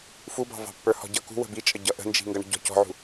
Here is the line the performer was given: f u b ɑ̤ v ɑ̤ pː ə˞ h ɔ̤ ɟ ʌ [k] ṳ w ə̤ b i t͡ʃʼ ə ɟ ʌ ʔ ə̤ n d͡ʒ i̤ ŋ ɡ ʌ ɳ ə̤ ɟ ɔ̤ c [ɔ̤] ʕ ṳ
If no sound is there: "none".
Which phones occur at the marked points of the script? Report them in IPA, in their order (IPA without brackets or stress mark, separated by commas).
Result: k, ɔ̤